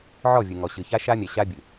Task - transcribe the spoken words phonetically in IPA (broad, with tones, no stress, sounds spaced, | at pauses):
ʕ ɔ˦˨ vʲ ɨ˨ ŋ ɔ˨ ɕ ɨ˨ ç a˦ ʃ a˦ mʲ ɛ˨ ɕ a˦ bʲ ɨ˨